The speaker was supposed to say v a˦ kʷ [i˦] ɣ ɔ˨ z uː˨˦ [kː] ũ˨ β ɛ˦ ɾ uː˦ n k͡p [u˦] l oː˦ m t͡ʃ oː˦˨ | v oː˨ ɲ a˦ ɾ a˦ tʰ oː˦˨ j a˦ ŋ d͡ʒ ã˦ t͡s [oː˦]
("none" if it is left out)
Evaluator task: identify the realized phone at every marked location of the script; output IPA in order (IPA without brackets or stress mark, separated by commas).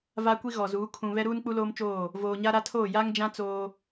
i˦, kʰ, u˦, oː˦